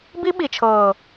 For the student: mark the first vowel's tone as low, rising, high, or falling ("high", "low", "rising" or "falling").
high